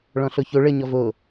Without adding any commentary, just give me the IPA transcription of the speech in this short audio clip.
ɭ ɔ̃ ɬ o ç o ɭ ə ɲ ɔ v o

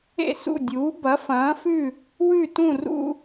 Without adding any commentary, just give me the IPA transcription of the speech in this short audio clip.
ḛ˥˩ s ṵ˥˩ dʲ uː˩˥ b ɐ˩˥ f ɐ̃ː˩˥ f ʉ˥˩ | w ʉ˥˩ t ũ˥˩ r ṵ˥˧

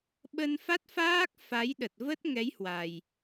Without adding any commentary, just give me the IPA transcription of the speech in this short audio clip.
ɓ ə˧ n f a˦˥ t̚ f aː˦˥ k̚ f a˨˦ j ɗ ə˨˩ t̚ v ə˦˥ t̚ ŋ ɛ˨˦ j h w a˨˩ j

